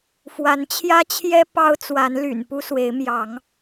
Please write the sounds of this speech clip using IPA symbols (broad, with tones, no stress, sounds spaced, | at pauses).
f w a˨˦ n t͡ɕʰ j ä˦ t͡ɕʰ j ɛ˦ p ɑ˦ ʊ̯ t͡s w a˨˦ n l y̰˨˩ n p u˦ s w e˨˦ ɪ̯ m j ɑ˨˦ ŋ